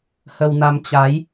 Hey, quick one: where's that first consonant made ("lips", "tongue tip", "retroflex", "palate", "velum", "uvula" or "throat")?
throat